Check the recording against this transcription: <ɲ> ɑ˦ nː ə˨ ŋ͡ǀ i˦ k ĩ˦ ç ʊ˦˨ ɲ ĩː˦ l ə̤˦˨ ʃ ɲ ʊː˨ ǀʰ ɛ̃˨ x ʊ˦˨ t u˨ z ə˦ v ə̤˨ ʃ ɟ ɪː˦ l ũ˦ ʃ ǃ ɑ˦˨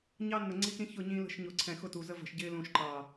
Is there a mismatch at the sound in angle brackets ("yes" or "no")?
no